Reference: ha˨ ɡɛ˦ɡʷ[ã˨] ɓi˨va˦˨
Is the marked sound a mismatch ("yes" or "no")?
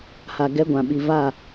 no